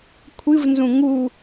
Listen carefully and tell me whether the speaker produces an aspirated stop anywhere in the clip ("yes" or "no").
yes